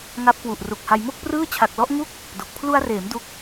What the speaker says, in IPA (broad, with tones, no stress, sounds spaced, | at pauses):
ŋ a˦˥ p̚ k w u˨˩ ʔ r u˨˩ k̚ h a˧ j m o˥˩ k̚ p r ɯː˥˩ t͡ɕʰ a˨˩ k̚ l ɔ˦˥ ʔ ŋ u˥˩ k̚ | d o˨˩ k̚ pʰ l u˧ a̯ r eː˩˦ m d u˦˥ k̚